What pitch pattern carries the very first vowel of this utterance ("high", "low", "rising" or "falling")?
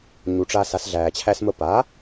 low